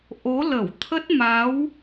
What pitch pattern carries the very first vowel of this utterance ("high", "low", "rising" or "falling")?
rising